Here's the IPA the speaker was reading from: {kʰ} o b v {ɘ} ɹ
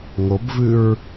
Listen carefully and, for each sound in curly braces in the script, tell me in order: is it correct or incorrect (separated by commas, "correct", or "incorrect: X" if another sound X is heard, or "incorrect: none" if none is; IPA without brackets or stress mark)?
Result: incorrect: ŋ, incorrect: ʉ